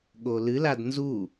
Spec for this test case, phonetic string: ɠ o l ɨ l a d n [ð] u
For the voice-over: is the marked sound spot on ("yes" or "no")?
no